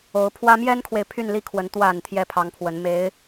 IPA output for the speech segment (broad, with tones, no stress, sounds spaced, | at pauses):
o˧˥ ʊ̯ pʰ w ä˥ m j ɛ˥ n kʰ w e˨ ɪ̯ pʰ y˥˧ n l i˥˩ kʰ w ə˧˥ n t̪ w a˨˩ n t̪ʰ j ɛ˥˩ pʰ ɑ˧˥ ŋ pʰ w ə˧˥ n m e˧˥ ɪ̯